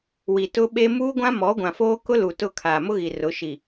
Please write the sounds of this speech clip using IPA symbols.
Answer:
w i˨ t ʊ˦ ɓ e˦ m uː˦ ɡʷ ã˦ m ɔ˨˦ ɡʷ ã˨ f oː˦ k ʊ˦ l u˨ t ʊ˦˨ kʰ aː˨ m ʊ˦ ɣ i˨ r ʊ˨˦ ʃ i˨

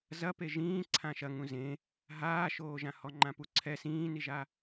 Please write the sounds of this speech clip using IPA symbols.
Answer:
z ɐ p e ʒ ĩː ǀʰ ã ʃ ɐ ŋ ũ z ẽ | ɦ aː ʃ oː ʒ ã h ɔ ŋ͡ǃ ã p u ǀʰ ɛ s ĩː n i ʒ a

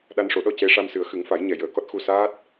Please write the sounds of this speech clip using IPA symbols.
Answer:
ɗ a˧ n ʂ o˨˩˦ ɗ ɔ˧ c e˧˥ ʂ a˧ m s ɨ˨˩˦ ə̯ x ɨ˨˩˦ ŋ f a˨˩˦ j ɲ ɛ˨˩˨ j əː˨˩˨ k ɔ˦˥ t̚ x u˧ s aː˦˥ t̚

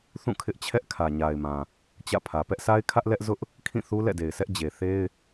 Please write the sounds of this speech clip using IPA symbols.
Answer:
θ ũ˦˨ kʰ ɪ˦ ʔ t͡ɕʰ ɛ˦ ʔ kʰ ä˨ ɲ a˨ ɪ̯ m ã˨ | t͡ɕ ä̰˦˨ pʰ ä˨ p ɛ˦ ʔ sʰ a˦ ɪ̯ kʰ ä˦ ʔ l ɛ˦ ʔ z ʊ˦ ʔ | kʰ ĩ˦˨ θ u˦ l ɛ̰˦˨ d e˨ ɪ̯ sʰ ɛ˦ ʔ d͡ʑ e˨ θ e˦ ɪ̯

